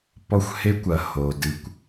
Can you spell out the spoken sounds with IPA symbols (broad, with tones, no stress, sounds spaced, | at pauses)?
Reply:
p ɔ˦ xʷ h e˦ kʷ ɐ˨ h o˨ d ɨ˨ kʷ